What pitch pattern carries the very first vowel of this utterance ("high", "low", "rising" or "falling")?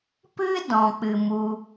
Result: high